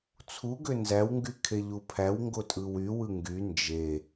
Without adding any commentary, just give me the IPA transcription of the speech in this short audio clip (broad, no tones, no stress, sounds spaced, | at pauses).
t͡sʰ u ɡ ø n z æ w ŋ ɡ y kʰ e ʎ u pʰ æ w ŋ ɡ o tʼ ɯ w y w ɯ ŋ ɡ y n d͡ʒ e